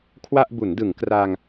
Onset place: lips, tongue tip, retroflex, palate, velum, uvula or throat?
velum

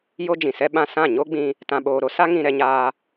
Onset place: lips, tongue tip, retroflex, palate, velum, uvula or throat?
palate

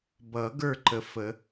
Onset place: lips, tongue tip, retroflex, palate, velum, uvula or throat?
lips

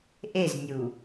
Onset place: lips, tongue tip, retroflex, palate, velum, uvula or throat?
throat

